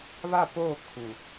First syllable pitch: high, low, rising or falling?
falling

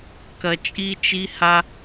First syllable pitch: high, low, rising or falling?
low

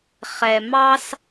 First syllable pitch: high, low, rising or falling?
low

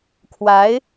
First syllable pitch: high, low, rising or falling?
rising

